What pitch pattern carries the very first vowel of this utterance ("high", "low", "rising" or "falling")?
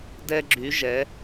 high